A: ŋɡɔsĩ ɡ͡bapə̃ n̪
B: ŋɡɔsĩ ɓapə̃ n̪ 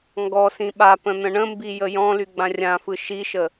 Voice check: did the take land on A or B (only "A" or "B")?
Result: B